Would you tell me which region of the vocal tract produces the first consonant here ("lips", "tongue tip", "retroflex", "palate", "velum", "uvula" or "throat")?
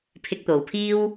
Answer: lips